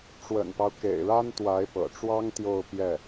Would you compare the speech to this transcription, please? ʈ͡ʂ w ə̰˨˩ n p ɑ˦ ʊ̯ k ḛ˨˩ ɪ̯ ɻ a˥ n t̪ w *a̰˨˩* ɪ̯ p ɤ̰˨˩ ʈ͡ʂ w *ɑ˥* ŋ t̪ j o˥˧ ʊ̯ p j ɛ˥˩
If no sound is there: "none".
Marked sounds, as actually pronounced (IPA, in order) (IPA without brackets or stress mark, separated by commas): a˧˥, ɑ˥